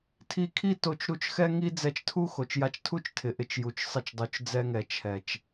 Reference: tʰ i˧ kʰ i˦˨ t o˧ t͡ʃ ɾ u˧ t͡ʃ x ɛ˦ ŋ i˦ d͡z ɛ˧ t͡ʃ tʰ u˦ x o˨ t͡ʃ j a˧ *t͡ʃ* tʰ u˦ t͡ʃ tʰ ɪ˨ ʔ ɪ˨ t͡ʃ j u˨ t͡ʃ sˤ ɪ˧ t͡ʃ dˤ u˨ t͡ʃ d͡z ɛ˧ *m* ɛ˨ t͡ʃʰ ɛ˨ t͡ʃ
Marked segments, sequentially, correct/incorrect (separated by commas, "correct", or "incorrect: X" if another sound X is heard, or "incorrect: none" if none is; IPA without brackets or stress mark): correct, incorrect: ŋ